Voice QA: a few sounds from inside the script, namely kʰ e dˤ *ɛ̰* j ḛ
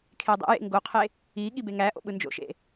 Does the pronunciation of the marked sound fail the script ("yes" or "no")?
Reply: yes